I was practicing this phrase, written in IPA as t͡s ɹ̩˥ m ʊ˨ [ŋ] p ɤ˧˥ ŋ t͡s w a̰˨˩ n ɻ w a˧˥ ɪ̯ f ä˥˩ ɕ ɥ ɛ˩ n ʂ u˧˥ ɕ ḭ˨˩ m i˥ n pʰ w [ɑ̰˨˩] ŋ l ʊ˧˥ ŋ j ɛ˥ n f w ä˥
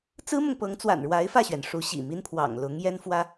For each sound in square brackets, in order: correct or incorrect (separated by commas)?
correct, correct